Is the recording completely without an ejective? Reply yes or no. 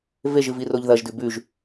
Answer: yes